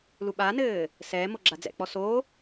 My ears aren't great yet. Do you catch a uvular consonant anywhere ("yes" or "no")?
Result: no